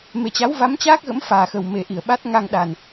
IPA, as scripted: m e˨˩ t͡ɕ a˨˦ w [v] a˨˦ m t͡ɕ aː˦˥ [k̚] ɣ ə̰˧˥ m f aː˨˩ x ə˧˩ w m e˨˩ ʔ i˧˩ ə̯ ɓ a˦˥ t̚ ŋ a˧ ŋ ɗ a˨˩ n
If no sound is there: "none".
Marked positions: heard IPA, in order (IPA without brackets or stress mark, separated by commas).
v, k̚